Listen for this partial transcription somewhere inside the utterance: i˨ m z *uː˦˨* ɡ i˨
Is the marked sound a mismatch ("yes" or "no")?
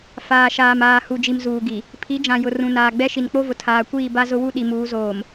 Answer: yes